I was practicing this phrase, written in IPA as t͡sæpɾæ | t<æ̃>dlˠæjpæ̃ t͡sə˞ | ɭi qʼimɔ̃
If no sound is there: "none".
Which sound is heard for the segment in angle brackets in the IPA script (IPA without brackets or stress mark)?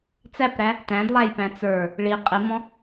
æ̃